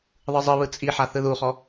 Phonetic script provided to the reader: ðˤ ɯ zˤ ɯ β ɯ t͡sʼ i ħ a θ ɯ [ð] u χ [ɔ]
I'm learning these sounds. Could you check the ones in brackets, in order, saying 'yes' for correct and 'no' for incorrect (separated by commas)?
yes, yes